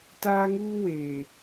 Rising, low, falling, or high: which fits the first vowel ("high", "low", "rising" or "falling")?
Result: high